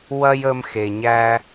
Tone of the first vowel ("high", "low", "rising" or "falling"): high